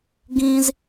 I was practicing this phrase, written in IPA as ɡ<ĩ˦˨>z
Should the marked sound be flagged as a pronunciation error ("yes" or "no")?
yes